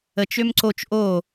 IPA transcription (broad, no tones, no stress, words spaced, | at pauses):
ət͡ʃ ømǀot͡ʃ ʔo